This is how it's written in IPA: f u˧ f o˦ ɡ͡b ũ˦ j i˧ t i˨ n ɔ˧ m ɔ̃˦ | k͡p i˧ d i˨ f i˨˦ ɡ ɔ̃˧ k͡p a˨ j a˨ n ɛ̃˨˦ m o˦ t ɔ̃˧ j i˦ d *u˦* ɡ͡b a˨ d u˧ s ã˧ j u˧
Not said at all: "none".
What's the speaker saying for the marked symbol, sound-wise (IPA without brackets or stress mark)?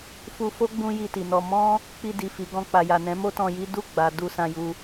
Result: u˦˨